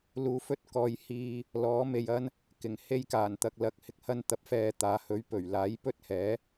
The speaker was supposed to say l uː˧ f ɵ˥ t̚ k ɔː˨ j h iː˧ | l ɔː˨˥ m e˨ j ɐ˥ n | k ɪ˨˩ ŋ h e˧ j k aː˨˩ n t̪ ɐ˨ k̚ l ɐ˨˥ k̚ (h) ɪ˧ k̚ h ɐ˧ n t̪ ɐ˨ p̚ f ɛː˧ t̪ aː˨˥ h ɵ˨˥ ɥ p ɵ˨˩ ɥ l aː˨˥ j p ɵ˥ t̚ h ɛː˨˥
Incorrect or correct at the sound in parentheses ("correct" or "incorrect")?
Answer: correct